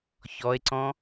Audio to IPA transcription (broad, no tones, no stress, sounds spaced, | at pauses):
ç ɔ e̯ ǀ ɔ̃